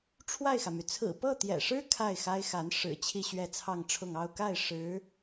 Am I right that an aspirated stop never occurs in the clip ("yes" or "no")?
no